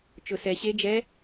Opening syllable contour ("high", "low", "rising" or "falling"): low